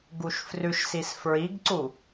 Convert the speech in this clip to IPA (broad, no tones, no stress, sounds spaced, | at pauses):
ɡ u ʃ f r ʉ ʃ s i s f ɹ i ɡ ǀ u